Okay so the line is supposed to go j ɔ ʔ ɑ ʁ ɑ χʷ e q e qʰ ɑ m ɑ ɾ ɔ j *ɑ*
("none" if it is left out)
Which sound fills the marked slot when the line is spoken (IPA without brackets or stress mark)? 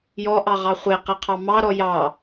ɑ